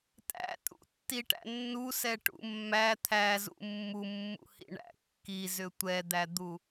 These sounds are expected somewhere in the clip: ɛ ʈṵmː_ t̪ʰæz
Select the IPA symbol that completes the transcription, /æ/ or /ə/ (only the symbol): æ